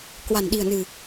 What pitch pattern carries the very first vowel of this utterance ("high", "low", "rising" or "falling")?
low